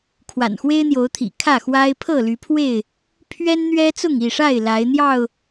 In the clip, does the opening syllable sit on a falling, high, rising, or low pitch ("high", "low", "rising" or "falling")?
low